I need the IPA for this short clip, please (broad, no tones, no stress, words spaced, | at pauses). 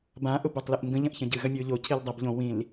bã ʔʊbotˤlɨʔŋɡə̃ ʎɐ̃ʔçɐ̃ɟɨ ɣɐmʲʊːʎo cʰildˤɐb ʎõ wĩl